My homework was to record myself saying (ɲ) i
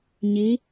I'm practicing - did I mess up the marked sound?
no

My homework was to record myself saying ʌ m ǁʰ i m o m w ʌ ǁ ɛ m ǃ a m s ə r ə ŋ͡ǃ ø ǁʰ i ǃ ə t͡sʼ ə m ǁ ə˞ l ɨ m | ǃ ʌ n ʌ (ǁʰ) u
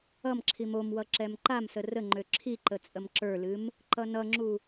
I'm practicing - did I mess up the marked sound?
yes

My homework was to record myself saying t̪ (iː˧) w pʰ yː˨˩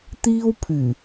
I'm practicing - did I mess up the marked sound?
yes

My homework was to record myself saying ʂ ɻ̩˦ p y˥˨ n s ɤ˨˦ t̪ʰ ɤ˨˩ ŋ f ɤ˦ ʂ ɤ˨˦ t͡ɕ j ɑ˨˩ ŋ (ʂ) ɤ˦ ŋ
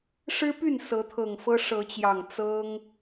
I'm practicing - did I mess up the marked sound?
yes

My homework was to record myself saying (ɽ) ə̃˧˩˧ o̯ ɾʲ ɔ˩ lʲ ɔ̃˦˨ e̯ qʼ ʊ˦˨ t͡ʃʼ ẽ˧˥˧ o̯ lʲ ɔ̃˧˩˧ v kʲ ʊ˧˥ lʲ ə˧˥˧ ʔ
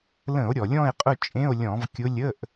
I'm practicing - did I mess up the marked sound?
yes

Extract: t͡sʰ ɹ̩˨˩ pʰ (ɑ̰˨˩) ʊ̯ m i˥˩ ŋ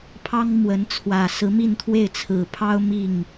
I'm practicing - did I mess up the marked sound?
yes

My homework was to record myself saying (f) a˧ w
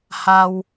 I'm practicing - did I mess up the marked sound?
yes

